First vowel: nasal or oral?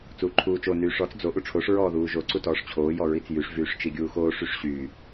oral